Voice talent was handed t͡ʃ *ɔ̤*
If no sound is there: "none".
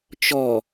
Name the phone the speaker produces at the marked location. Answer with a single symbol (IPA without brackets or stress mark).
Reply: ɔ